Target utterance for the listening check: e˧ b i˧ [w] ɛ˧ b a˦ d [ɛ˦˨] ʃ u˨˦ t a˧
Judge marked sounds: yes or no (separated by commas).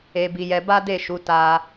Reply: no, no